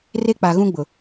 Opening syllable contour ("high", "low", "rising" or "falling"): high